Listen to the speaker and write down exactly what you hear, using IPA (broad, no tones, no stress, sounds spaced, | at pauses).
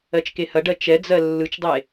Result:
ɜ t͡ʃ k e h ɐ ɖ ɜ t͡ʃ ɛ d͡z ɜ lː ɯ t͡ʃ dˤ e